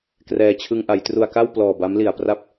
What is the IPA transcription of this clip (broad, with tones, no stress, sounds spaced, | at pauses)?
k r ɛː˧ t͡ɕʰ ɯ˧ ŋ ʔ a˩˦ j t r u˧ a̯ k a˥˩ w p l ɔː˨˩ b a˦˥ m l i˨˩ a̯ p r a˥˩ p̚